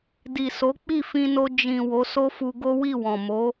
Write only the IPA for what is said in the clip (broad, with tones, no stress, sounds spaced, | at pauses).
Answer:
d i˨ s o˨˦ k͡p i˦˨ f ĩ˧ n o˧ d͡ʒ ĩ˨ w o˨˦ s o˦ f u˧ ɡ o˦ w i˦˨ w ɔ̃˨ m o˨˦